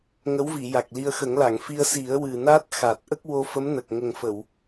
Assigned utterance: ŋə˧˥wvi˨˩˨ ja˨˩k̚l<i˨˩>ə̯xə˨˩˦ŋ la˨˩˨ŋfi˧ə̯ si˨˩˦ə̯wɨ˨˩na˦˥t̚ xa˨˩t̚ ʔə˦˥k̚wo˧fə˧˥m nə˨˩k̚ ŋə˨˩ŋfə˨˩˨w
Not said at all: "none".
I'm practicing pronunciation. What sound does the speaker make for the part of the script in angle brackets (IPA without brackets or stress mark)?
i˧